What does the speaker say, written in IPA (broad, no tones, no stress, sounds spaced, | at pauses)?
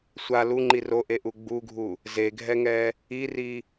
sʷ a l u ŋ͡ǃ i r o ʔ e ʔ u ɡ͡b u ɡʱ u | z e ɡʱ ɛ ŋ ɛ | i r i